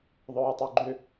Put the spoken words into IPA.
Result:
ðˤ œː tˤ o ɡ͡ǃ ʏ

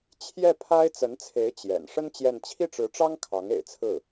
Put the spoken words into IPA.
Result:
t͡ɕʰ j ɛ˥˩ pʰ a˥ ɪ̯ t͡s ə˧˥ n t͡sʰ e˧˥ ɪ̯ t͡ɕ j ɛ̰˨˩ n ʂ ə˥ n t͡ɕ j ɛ˥˧ n t͡ɕʰ i˥˩ ʈ͡ʂ ɻ̩˧˥ ʈ͡ʂ ɑ˥ ŋ kʰ ɑ˧˥ ŋ ḛ˨˩ ɪ̯ t͡sʰ ɹ̩˥˩

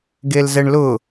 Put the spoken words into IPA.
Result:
ɡ e l z ɛ ɳ l ʊ

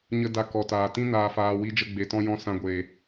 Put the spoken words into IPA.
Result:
ɲ ə˦ d a˧ k ɔ˨ t aː˨ t ĩ˦ n aː˧ f aː˧ w i˦ d͡ʒ ə˦ ɡ͡b e˧ t ɔ̃˦ j ɔ̃˦ s ã˦ ɡʷ eː˧

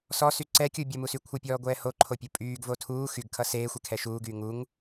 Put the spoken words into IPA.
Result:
s ɔ s y ǀ ɛ kʲ u bʲ ʌ m u s y kʷʰ ʌ pʲ ɔː ɡʷ ɛː h o ǃʰ o pʲ u pʼ yː ɡ v o tʰ uː x y ɡ kʰ ʌ s eː xʷ ɛ kʰ ɛ ʃ uː ɡ yː ŋ u ŋ

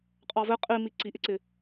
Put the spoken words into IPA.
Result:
qʼ ɑ v ɘ qʼ i m i ǀ i ʔ ɪ ǀ ɪ

